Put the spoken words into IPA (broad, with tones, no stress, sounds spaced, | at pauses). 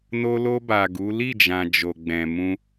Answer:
n o˧ l o˧ b a˨ ɡ u˨˦ l i˦˨ d͡ʒ ã˨ d͡ʒ o˨ ɡ͡b ɛ̃˨ m ũ˧